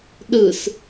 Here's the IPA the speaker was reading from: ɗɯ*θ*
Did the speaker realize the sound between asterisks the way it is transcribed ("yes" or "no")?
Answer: no